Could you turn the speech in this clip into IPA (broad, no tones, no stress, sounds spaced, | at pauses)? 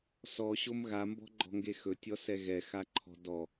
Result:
s ɔ ɕ o m ɣ a m b ɔ̤ ɡ͡ǃ ɔ̤ ŋ ɡ e x ɵ tʲ ɔ s ɛ ɣ ɛ x a ǃʰ ɔ̤ d ɔ